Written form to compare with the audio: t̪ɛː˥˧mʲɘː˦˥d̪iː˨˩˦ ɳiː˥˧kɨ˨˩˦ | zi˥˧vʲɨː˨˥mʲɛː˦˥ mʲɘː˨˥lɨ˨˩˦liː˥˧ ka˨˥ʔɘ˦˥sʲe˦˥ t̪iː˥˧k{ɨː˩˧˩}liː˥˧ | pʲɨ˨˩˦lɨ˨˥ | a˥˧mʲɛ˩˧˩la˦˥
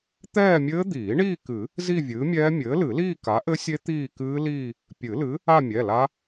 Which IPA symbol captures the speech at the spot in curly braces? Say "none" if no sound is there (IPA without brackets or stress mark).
ɨː˦˥